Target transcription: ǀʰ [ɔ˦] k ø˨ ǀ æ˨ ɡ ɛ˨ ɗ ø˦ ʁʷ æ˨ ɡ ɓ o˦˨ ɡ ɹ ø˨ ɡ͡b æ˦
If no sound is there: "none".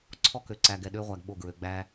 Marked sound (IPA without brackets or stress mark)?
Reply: ɔ˦